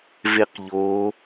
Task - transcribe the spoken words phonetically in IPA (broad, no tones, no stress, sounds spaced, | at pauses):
v e q ʎ o